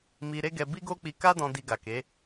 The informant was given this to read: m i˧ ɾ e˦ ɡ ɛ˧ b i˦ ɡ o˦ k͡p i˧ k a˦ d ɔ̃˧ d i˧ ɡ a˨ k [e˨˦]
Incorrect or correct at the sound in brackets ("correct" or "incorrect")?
correct